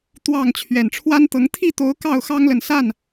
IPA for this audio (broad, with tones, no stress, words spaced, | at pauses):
t̪wɑ˥˨ŋ t͡ɕʰɥɛ˨˩nʈ͡ʂʰwa˦nt̪ɤ˨˦ŋ t̪ʰi˥˨t̪o˨˦ʊ̯ kɑ˥˨ʊ̯xɑ˦ŋlə˨n sa˥˨n